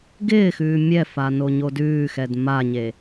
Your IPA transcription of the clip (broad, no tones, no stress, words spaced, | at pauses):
ɡɪːxʉː mʲɛfa noɲodʉːxɛd maɲe